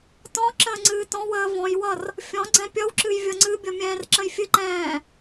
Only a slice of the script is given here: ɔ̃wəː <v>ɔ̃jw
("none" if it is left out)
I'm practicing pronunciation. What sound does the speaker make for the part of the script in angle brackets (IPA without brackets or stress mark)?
v